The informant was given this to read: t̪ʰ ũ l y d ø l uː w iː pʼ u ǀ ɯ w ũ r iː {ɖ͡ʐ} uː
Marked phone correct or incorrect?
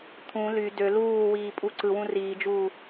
incorrect